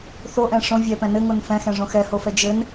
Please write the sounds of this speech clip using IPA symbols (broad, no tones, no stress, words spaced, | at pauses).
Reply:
θoʔɛ̃ ʂõ vʲɛpɛ̃ nɘŋon fɛ̃xɛ̃ʐõ xɛhofɛ d͡ʒɘn